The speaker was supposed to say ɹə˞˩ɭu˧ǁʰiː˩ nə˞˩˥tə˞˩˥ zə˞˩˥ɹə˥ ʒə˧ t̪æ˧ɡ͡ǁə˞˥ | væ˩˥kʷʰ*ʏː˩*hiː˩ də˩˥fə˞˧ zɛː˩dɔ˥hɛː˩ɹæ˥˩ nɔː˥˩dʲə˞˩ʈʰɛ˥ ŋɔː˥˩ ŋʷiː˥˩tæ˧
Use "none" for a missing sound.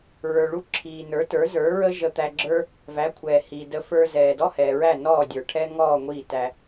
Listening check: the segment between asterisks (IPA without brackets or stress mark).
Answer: ɛː˩